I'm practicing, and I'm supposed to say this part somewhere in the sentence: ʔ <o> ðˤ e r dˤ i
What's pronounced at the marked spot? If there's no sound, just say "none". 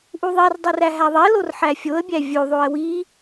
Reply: u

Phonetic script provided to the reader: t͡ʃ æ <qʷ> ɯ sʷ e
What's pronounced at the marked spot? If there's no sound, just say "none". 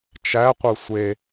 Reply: qʷ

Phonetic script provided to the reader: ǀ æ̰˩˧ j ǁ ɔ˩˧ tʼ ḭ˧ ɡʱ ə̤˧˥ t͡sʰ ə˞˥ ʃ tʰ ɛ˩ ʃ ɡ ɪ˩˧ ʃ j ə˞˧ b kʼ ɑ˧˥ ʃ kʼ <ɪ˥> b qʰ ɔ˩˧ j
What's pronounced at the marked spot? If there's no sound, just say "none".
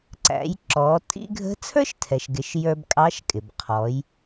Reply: ɪ˩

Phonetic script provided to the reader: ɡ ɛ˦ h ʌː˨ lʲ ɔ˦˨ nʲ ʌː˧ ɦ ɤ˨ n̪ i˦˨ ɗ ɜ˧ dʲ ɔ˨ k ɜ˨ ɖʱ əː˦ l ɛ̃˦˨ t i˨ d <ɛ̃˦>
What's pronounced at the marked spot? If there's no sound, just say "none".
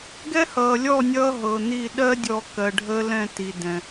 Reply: ɛ̃˨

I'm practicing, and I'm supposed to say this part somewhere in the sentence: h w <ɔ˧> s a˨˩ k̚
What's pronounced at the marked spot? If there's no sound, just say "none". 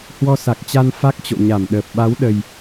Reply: ɔ˧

